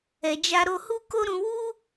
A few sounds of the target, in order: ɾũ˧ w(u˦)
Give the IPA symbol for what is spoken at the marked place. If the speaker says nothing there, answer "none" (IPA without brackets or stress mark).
u˦